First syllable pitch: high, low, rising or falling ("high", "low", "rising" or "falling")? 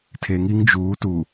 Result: low